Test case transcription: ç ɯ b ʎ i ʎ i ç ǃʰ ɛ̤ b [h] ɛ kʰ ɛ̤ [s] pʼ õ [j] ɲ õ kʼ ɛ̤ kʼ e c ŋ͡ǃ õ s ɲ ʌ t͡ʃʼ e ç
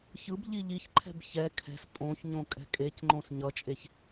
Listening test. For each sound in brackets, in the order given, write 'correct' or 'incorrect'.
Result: incorrect: ç, correct, incorrect: ç

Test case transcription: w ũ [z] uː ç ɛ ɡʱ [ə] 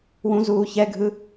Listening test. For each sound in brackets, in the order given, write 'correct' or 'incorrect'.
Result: correct, incorrect: ɯ

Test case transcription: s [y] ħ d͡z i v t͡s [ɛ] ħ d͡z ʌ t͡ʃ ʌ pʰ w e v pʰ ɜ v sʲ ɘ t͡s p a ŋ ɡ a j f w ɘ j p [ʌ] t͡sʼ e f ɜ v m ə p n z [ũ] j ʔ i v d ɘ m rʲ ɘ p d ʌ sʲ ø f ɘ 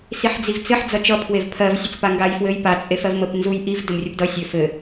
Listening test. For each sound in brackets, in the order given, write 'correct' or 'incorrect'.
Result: incorrect: i, incorrect: ɘ, incorrect: a, incorrect: u

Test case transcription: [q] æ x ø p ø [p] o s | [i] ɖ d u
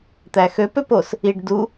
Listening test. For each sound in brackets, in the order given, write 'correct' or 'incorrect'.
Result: incorrect: t̪, correct, correct

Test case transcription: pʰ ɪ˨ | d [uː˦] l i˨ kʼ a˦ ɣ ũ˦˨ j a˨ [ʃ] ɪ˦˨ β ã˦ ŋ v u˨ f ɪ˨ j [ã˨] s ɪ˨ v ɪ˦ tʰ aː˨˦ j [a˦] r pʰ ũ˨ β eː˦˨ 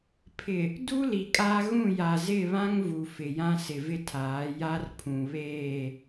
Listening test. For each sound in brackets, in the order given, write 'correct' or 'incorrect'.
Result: incorrect: u˦, incorrect: z, incorrect: ã˦, correct

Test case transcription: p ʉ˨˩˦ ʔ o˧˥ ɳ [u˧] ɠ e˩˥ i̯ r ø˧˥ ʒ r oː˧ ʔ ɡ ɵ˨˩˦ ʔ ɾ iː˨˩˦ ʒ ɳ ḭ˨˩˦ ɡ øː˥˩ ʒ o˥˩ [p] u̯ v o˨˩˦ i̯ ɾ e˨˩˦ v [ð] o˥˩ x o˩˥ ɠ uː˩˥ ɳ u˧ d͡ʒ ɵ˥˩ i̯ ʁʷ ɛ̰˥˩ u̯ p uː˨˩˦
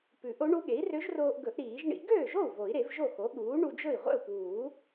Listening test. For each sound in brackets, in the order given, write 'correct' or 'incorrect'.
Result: incorrect: u˧˥, incorrect: none, incorrect: ʒ

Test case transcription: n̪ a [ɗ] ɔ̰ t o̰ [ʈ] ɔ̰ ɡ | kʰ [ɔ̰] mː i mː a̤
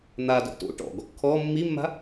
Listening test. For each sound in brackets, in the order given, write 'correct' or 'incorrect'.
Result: incorrect: d, correct, incorrect: ɔ

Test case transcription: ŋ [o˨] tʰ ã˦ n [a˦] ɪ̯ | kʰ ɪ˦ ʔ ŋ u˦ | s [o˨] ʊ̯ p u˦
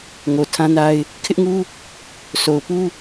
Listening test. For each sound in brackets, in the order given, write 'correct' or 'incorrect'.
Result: correct, correct, correct

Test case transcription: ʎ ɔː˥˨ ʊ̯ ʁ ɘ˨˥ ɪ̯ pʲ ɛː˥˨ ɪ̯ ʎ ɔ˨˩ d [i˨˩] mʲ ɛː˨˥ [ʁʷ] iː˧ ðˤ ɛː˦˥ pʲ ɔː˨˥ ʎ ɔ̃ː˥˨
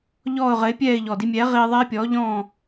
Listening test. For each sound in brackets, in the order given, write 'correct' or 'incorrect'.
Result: incorrect: i˧, incorrect: ʁ

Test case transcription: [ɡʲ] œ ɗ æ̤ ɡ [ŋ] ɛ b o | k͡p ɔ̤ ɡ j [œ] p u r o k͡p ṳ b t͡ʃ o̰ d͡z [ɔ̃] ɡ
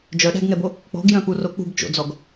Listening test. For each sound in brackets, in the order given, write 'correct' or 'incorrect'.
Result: incorrect: d͡ʒ, correct, incorrect: œ̃, incorrect: ɔ

